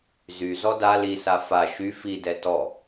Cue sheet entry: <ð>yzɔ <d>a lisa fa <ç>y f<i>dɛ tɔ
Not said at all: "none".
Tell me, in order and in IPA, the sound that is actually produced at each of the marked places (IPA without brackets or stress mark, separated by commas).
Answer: z, d, ʃ, i